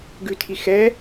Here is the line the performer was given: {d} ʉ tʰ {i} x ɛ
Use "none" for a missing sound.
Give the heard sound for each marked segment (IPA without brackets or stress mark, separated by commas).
ɡ, i